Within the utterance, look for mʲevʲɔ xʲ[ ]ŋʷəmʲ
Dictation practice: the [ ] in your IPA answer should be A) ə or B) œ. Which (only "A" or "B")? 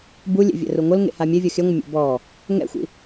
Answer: B